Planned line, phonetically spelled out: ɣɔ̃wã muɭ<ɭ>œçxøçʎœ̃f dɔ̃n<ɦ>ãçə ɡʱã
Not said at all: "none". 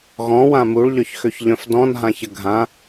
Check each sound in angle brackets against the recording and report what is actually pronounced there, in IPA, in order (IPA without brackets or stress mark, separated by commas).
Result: ʎ, ɦ